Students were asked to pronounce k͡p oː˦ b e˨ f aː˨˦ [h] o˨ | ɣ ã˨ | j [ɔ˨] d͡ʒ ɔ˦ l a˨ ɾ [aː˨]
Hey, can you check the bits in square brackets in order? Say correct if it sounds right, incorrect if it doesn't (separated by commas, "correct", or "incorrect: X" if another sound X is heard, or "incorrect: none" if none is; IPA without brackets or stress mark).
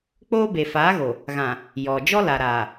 incorrect: ɣ, correct, correct